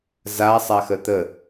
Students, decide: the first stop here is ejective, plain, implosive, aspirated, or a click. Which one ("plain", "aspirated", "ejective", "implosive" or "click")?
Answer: plain